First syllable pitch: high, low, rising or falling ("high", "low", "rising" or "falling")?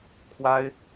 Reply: high